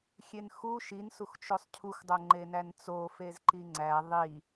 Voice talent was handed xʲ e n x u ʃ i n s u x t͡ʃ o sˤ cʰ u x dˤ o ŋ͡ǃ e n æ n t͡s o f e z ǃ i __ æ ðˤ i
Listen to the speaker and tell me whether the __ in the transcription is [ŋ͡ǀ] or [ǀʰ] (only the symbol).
ŋ͡ǀ